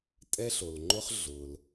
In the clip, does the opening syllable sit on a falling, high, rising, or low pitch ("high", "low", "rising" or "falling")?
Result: high